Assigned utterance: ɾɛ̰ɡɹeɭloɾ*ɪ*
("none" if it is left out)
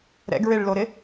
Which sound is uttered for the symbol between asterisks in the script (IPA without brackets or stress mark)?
ɪ